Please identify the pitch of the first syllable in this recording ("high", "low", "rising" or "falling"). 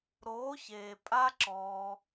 rising